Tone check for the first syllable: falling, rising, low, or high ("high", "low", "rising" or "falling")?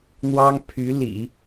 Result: high